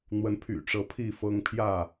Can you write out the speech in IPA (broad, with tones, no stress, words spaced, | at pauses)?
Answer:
n̪wə˨˦npʰy̰˨˩ʈ͡ʂɤ˨˦ pʰi˥˨fɤ˦ŋ pʰjä˥˨